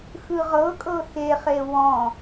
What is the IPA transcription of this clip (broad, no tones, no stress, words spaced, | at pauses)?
xɯʁɤkʼɤ xeχe wɔ̃